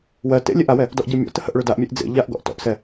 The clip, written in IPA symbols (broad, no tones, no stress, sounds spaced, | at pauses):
w ɜ t ḛ lʲ e ʔ a w ɛ | d ɔ ʔ ɟ ɜ mʲ ɔ̰ t ə h ə ʔ ɭ ø d a ʔ mʲ e ʔ d͡z ḛ ʎ a ʔ ɡ ɔ̰ ʔ t ɔ̰ ʔ s ɛ